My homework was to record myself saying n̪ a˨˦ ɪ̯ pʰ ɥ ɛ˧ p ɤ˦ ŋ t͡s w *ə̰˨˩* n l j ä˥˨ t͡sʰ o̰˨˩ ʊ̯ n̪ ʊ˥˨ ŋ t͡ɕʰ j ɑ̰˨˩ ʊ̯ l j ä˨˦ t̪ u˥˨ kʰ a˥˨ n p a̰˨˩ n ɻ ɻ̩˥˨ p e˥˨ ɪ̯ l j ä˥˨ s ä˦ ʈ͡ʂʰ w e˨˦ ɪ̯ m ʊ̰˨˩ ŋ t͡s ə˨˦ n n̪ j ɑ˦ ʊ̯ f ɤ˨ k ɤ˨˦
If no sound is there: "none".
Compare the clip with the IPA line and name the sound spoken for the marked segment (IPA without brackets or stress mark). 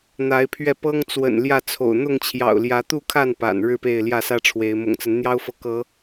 ə̰˨˩